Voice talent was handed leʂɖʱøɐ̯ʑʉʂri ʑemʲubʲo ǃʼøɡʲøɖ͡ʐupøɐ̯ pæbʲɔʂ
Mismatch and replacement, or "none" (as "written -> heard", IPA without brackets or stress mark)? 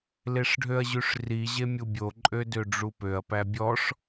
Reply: ɡʲ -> d